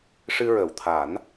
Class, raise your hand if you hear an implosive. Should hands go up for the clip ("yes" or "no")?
no